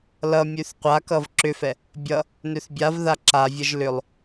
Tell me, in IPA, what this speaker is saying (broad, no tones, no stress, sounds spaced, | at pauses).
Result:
l ʌ mʲ ʉ θ qʷ a k ʌ v ǁ ʏ f ɛ | bʲ ʌ | n ø θ bʲ a v ð a ǁ a vʲ ʌ ʒ l ʏ lˠ